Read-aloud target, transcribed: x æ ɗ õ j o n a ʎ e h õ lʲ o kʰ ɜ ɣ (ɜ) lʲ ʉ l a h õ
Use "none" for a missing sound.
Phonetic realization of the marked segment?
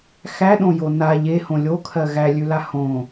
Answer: æ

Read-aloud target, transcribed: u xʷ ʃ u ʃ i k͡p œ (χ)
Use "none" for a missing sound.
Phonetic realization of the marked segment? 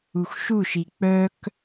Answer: k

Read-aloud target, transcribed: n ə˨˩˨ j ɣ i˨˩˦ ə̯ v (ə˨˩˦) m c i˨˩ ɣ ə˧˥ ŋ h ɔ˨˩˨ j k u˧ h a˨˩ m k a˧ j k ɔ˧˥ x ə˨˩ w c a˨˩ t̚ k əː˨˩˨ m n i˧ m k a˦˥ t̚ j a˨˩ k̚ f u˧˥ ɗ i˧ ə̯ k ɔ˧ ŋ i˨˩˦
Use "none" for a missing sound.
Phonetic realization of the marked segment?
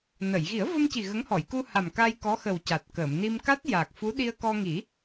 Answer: ə˧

